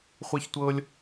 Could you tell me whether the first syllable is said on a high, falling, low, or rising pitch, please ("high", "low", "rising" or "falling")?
high